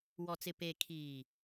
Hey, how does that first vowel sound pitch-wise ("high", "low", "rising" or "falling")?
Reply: low